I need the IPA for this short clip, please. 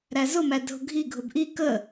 ɾ æ z ʊ m æ dʱ ʊ ɡʱ i ɡʱ ʊ b ʔ i k ə

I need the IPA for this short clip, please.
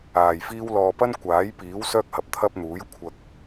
aː˨˩ j f iː˥ w l ɔː˨ p ɐ˥ n kʷ aː˨˥ j p iː˨˥ w s œː˥ k̚ h ɐ˨˥ p̚ t̪ʰ ɐ˥ p̚ n̪ uː˨˥ j kʷʰ ɐ˧ k̚

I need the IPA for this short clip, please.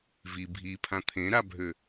v i bʱ i pʰ ã t̪ʰ ẽ ɾ a bʱ ø

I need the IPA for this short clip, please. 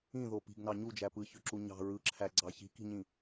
ĩ ð o p i̤ ɡ n ɑ ɲ u d͡ʒ æ p ɯ ç ø ǁ u ɲ ɑ̤ ɹ ɯ ǁʰ æ ɡ͡ǀ ɑ ç i̤ k i̤ ɲ ĩ

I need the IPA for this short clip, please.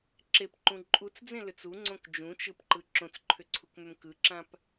ǁ e p ǃ ũ ǃʼ u t͡s d͡z ẽ l ʏ t͡s u ŋ͡ǀ õ k d͡ʒ ũ t͡ʃ ɯ p ǃ ɯ ǁ õ t͡s ǃʰ ʏ ǀʰ u k m ʏ m k ɯ ǁ ã p

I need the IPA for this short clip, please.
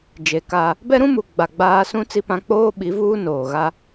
d͡ʒ e˨ k a˦ | b ɛ˦ ɾ ũ˦ m u˨ ɡ͡b a˨ ɡ͡b aː˦ s ũ˦ t͡s i˦ p ã˦ k͡p oː˦ ɓ i˨˦ v uː˦ n oː˨ ɣ a˦

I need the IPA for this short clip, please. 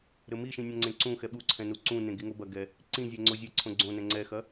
ɾ ɘ m i ʃ ĩ nʲ ɐ̃ ŋ͡ǀ ẽ ǀ ũ x ɛ ɓ u ǀʰ ɛ̃ n u ǀ ũ n ẽ ɡ i ŋ o b ɐ ɡ ɛ | ǀ ĩ zʲ ɛ ŋ͡ǀ o zʲ e ǀʰ õ ɡ͡ǀ õ n ɛ̃ ŋ͡ǀ ɛ x ɐ

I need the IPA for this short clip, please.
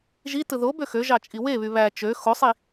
ʒ i t ɯ ð o b ø x ø ʒ ɑ t͡ʃʼ i w e β y β æ t͡ʃ ø x o sˤ i

